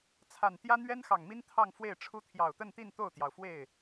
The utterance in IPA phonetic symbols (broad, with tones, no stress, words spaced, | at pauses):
t͡sʰa˨˩nt̪jä˥ n̪ɥɛ˥nxɑ˨˩ŋmi˥n t̪ʰɑ˥˧ŋfwe˥˩ɪ̯ʈ͡ʂʰu˥ t̪ʰjɑ˨˩ʊ̯t̪ə˥˧nt̪i˥˧n t̪o˥˩ʊ̯t̪jɑ˩ʊ̯fwe˥˩ɪ̯